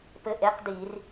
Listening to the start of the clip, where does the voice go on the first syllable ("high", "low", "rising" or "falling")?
falling